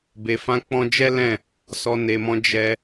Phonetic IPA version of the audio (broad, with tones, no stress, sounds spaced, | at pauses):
b e˨ f ã˧ k͡p ɔ̃˧ d͡ʒ ɛ˦ l ɛ̃˦˨ | s ɔ˨ n e˨ m ɔ̃˧ d͡ʒ ɛ˧